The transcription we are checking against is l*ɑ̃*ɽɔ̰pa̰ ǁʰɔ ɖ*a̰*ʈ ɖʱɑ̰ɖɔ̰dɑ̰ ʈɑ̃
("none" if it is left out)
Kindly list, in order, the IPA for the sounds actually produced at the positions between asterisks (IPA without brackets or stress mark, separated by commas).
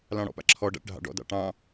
ɑ̃, a̰